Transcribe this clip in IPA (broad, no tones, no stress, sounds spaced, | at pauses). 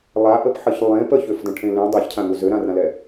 lˠ a ʔ ə p ħ ə ç lˠ ẽ p ə ç ø f d ə̃ ʈʰ ẽ l ẽ dˤ e ç cʰ ã ŋ u z ø ɾ ã r ã l ɛ